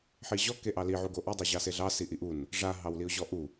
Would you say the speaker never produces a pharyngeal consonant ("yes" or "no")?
no